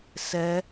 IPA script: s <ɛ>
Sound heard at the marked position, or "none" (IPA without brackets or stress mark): ɛ